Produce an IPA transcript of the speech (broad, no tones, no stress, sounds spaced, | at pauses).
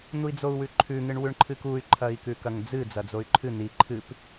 n̪ u i̯ d͡z o u̯ w ʉ ǃʰ ʉ ŋ ɨ ɳ w ʉ ɳ ǃʰ ɨ k u y̯ ǃʰ ɐ i̯ k ʉ k ɐ ŋ d͡z ɨ d͡z ɐ d͡z o y̯ ǃʰ ɨ n̪ i ǃʰ ɨ p